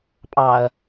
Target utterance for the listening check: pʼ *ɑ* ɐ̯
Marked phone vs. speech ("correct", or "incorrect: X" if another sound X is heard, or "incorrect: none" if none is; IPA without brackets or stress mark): correct